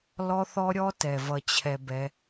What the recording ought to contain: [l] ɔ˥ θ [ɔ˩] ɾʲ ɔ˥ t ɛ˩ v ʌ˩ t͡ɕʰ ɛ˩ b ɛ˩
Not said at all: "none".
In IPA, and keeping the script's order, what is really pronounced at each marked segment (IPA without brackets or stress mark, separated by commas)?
l, ɔ˥